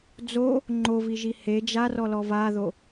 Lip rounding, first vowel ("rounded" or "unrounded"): rounded